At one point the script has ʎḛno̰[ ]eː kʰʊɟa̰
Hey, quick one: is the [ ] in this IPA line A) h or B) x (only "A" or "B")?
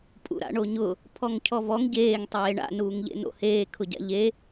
A